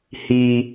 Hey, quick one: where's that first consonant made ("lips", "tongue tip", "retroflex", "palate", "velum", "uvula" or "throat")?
throat